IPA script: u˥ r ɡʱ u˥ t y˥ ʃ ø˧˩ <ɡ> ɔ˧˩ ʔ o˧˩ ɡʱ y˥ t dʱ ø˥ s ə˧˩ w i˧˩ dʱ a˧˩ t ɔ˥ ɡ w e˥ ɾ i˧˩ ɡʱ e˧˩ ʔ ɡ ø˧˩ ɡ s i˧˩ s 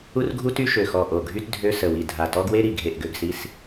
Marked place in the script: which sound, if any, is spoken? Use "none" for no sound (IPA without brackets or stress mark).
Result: x